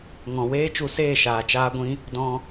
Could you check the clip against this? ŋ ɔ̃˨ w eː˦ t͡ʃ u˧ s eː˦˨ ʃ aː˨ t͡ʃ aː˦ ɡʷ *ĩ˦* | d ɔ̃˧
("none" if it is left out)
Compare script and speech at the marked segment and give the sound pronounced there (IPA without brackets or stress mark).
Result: ĩ˦